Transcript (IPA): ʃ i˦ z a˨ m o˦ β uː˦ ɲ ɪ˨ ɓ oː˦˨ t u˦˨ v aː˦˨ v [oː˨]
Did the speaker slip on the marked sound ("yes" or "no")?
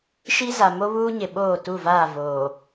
no